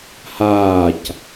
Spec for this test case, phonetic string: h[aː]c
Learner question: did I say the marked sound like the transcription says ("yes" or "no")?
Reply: yes